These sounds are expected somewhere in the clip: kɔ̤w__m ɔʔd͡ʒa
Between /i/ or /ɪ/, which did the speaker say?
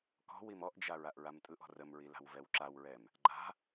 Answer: i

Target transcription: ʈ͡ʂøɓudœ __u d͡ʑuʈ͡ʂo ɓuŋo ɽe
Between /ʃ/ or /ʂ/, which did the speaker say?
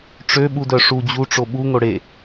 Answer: ʂ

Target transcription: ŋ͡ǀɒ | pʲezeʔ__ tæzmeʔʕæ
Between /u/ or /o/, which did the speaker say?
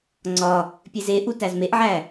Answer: u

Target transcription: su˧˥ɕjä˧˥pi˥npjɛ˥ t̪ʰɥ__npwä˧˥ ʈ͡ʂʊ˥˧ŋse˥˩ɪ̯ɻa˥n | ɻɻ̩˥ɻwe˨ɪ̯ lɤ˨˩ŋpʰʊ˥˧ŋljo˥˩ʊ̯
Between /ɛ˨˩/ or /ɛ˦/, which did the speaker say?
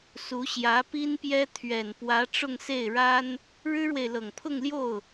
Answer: ɛ˨˩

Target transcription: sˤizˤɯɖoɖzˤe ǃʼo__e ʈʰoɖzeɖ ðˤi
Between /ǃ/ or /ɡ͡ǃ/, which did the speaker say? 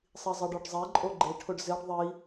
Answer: ɡ͡ǃ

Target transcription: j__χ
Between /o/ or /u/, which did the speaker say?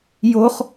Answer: o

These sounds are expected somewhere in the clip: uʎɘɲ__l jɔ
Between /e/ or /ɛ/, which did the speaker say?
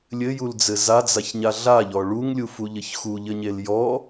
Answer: e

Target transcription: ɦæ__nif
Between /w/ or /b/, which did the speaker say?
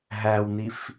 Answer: w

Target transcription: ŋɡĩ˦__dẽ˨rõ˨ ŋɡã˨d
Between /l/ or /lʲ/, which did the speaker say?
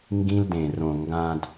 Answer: l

